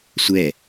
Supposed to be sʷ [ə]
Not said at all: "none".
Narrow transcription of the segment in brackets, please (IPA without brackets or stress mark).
ɛ